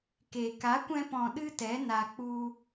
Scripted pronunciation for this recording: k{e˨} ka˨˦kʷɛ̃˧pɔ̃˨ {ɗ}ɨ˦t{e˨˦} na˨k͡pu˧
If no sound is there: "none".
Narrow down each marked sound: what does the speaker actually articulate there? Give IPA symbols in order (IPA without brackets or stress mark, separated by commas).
e˨, ɗ, ɛ˨˦